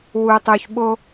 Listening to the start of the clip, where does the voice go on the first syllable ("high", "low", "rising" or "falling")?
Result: low